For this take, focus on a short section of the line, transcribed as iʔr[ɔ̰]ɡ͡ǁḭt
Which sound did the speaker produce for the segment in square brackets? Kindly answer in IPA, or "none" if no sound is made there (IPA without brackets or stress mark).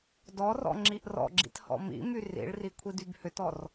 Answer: ɔ̰